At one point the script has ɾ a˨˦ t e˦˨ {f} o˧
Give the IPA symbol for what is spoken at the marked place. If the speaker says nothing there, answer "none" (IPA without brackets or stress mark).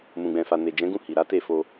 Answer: f